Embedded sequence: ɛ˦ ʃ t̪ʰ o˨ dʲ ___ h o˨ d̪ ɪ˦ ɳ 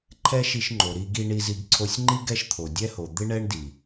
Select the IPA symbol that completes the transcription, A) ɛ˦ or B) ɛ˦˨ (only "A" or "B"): A